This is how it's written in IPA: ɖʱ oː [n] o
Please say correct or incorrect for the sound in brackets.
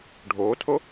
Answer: incorrect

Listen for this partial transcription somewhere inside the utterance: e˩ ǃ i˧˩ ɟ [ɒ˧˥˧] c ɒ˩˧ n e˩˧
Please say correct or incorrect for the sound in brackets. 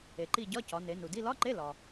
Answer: correct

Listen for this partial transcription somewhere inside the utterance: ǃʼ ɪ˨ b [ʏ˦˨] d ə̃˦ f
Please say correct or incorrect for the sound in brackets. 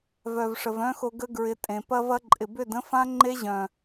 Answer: correct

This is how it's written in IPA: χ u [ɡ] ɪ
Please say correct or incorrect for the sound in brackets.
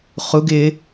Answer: correct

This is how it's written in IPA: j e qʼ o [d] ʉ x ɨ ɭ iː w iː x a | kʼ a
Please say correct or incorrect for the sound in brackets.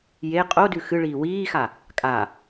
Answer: correct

